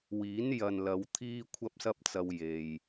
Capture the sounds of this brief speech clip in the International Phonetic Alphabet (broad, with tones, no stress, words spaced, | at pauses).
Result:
wiː˨˥n jɐ˨nlɐ˨˧w t̪ʰiː˥kʷʰɐ˥p̚sɐ˥p̚t͡sɐ˧w je˨j